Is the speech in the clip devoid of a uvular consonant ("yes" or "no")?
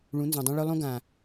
yes